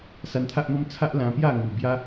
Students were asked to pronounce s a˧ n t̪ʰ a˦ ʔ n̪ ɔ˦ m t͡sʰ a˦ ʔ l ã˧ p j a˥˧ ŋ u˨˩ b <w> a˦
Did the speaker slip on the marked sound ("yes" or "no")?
yes